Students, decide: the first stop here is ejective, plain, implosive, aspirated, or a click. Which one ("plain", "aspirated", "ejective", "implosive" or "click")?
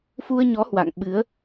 implosive